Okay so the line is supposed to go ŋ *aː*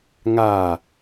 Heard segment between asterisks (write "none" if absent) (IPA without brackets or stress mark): aː